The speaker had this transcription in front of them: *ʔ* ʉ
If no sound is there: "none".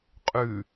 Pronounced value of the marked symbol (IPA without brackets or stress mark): qʼ